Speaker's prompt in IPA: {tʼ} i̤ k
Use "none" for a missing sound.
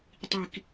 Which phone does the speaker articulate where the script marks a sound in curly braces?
tˤ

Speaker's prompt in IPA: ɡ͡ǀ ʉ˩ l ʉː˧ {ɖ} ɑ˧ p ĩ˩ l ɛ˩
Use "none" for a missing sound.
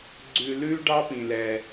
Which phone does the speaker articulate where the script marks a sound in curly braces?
ɖ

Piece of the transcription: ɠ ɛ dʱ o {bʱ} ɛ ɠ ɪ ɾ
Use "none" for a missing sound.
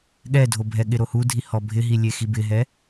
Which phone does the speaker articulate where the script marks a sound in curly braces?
bʱ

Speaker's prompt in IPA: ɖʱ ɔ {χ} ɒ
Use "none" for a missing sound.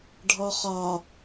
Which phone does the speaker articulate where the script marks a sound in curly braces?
χ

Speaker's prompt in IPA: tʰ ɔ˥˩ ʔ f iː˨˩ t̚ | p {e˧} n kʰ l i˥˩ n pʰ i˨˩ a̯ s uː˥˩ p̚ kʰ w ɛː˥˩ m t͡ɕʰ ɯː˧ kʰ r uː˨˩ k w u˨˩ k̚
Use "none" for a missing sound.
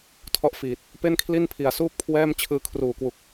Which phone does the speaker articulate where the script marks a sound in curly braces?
e˥˩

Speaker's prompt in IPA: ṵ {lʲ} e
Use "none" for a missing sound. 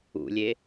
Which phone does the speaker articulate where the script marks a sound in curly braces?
lʲ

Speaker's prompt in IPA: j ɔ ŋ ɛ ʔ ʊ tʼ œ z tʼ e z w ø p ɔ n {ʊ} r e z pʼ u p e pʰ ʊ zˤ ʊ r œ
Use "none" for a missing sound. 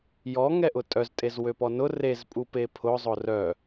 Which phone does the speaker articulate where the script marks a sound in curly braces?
ʊ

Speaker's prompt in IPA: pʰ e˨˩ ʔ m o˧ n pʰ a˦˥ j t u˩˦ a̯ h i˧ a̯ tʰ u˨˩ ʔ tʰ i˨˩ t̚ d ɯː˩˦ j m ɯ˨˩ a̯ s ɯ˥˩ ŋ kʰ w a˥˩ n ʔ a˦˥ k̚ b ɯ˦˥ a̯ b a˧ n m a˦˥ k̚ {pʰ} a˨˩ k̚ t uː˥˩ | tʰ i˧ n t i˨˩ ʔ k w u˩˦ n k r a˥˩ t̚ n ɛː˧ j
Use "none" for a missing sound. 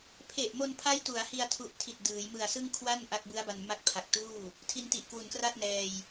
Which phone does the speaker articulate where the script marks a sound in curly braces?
pʰ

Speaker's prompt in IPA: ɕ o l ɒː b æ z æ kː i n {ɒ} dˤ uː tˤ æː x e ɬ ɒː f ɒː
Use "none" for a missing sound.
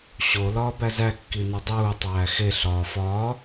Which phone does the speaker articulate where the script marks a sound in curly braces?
ɒ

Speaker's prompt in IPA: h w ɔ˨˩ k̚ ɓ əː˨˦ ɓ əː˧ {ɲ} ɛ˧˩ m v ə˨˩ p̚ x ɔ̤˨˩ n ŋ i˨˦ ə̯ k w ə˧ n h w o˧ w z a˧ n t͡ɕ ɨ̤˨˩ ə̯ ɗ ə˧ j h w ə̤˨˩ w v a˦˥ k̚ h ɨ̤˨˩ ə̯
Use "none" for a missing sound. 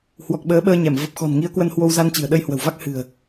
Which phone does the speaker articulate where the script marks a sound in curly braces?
ɲ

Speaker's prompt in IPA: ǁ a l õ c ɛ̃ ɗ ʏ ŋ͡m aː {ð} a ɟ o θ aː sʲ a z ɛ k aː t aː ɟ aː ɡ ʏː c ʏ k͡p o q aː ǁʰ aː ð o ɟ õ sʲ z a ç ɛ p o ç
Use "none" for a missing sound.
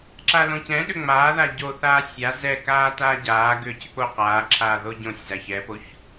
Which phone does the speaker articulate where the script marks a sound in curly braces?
ð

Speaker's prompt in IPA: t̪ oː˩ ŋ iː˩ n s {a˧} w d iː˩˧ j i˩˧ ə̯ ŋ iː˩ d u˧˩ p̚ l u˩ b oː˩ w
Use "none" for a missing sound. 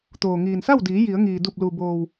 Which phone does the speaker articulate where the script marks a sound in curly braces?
a˥˨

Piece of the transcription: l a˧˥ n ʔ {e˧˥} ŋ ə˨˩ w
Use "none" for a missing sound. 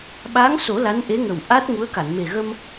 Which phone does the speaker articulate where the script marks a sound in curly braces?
e˧˥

